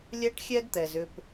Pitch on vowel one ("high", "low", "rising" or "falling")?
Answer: high